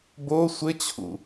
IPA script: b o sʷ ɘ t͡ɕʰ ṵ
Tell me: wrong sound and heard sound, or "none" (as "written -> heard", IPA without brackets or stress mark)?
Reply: none